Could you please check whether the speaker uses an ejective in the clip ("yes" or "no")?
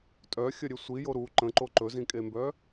yes